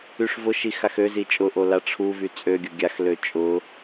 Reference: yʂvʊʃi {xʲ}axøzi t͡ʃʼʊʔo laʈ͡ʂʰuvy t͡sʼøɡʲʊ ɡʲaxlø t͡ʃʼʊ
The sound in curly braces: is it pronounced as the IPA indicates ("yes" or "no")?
no